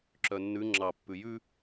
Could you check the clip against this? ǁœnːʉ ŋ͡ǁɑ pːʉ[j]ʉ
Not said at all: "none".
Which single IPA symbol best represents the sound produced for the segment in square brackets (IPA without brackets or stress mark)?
j